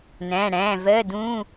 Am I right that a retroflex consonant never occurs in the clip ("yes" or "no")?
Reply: no